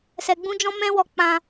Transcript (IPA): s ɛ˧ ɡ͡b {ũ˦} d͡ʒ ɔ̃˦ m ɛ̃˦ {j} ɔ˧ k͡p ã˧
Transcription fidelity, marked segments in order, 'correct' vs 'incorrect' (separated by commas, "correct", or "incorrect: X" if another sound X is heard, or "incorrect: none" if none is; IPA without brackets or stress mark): correct, incorrect: w